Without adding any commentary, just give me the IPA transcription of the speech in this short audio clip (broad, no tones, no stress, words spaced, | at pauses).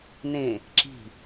nẽ | ǁi̤